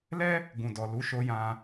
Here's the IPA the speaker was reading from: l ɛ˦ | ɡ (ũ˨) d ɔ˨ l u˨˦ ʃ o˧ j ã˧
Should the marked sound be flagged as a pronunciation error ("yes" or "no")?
no